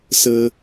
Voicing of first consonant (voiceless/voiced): voiceless